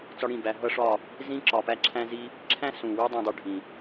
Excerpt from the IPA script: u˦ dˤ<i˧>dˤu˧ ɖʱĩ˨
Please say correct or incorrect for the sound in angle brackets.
incorrect